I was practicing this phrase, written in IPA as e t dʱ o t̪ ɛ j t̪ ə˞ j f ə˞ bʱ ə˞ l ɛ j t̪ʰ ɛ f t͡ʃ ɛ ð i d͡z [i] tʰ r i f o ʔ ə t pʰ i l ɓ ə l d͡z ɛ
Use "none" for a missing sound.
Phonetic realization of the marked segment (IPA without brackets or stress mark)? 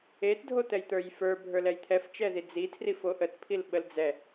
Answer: i